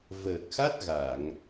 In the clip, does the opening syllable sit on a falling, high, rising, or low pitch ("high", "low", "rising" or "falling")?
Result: low